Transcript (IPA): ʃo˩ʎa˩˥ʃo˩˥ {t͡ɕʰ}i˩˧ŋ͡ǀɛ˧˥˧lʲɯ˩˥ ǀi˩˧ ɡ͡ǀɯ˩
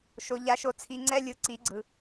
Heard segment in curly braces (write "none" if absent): t͡sʰ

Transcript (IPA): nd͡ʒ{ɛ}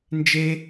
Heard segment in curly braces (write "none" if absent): e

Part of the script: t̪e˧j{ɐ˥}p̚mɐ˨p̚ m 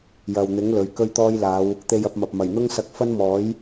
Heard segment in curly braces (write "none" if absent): ɐ˧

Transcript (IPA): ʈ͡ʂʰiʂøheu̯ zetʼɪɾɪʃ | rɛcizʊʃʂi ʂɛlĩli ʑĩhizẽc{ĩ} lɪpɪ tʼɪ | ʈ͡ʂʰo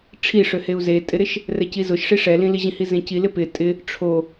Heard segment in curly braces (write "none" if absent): i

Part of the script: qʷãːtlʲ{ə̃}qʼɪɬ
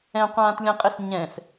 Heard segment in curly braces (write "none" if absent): ə̃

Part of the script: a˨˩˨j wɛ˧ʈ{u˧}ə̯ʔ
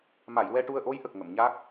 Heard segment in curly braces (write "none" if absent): u˧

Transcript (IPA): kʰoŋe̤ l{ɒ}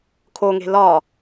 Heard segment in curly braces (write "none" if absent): ɒ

